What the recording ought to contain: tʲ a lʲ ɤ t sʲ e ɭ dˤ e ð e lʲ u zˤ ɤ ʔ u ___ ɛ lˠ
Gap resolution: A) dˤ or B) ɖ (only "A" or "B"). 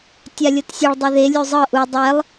A